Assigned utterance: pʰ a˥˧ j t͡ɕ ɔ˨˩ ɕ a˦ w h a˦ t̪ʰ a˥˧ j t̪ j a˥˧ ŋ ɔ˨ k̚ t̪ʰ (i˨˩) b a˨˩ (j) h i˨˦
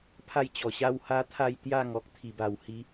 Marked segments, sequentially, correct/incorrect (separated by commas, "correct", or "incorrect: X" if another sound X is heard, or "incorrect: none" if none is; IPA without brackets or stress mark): correct, incorrect: w